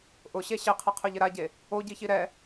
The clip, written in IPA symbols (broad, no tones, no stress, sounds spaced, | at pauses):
ʔ ʊ ɕ e ɕ ɪ qʰ ɪ qʰ ʊ ʎ ɪ ɾ a ɟ e | o ɟ i ç i ɾ ɛ